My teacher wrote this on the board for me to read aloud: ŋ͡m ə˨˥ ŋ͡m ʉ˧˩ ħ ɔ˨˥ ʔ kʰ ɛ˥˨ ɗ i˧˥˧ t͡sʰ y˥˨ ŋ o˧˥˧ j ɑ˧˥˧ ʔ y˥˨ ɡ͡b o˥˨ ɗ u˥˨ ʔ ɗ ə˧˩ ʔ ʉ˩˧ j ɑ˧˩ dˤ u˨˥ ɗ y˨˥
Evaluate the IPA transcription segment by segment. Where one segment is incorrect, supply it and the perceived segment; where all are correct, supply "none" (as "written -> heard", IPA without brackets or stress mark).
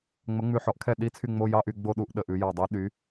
ŋ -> ŋ͡m